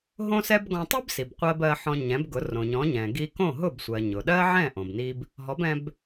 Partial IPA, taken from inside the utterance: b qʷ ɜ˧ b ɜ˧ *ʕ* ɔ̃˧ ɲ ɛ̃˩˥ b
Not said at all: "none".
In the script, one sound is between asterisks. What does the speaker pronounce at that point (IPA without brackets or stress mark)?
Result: ħ